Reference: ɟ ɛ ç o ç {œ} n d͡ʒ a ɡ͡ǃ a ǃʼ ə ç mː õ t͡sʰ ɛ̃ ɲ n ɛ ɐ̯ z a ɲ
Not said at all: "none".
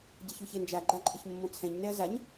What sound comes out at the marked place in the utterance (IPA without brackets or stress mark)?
ɛ